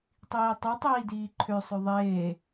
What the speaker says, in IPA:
tˤ iː tˤ u tˤ iː d iː ǃʰ ø sˤ ø ðˤ eː

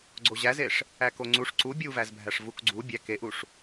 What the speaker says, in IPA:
ɡ͡ǀ o ʑ æ z e ʂ | æ k o ŋ͡ǀ u ʂ ǀ u bʲ u v æ z bʱ æ ʂ v u k ɡ͡ǀ u bʲ æ k e ʔ u ʂ

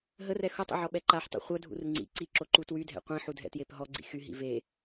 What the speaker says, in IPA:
ɦ ə r ɛ x o tˤ ə̰ ʕ ɔ ɓ ɛ ǃ a ħ tˤ ṵ χʷ œ dʱ ṵ r ŋ͡ǀ ḭ ǀ i ǁ o ǃ u t w y dʱ ɛ̰ qʷ ĩ ħ u dʱ ɛ̰ t j e p ɦ ɔ ɡ͡ǀ ḭ x y ɦ ḭ v e

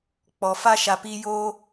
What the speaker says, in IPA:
k͡p ɔ˨ f a˦ ʃ a˨ p i˦ j oː˦

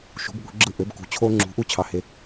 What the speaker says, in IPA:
ʃ ṳ˩˥ b ɠ ṳ˩˥ ɡ͡ǁ ɯ˥˩ ʔ ø˩˥ b k ṳ˩˥ t͡ɕʰ o˧ ŋ͡ǁ ṳ˩˥ ʔ u˥ t͡ɕʰ ɑ˧ h e˧

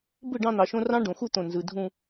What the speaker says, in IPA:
b ɯ˦˨ ɖ ɑ̃˦ n̪ ɑ˨ ʃ õ˦ r ɑ̃˦ ɖ õ˨ x u˦ t̪ õ˨ n z ɯ˨ dʱ ũ˦

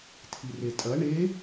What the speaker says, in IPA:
tʰ i r e tʼ ɐ ɳ e

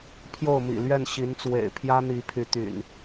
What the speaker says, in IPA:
pʰ j o˥˨ ʊ̯ m ḭ˨˩ l ɥ ɛ˥˨ n ɕ i˨˦ n t͡s w ḛ˨˩ ɪ̯ pʰ j ä˦ n̪ i˨˦ pʰ y˨˦ t̪ y̰˨˩ n

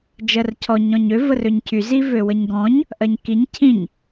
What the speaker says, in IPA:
d͡ʒ ɜ r cʰ ɔ ɲ ɔ̃ ɲ ø v ə r ø ɲ cʰ y z i v ø w ə ɲ ɡ ɔ̃ ɲ | ʔ ɜ ɲ k i ɲ cʰ ĩ ɲ

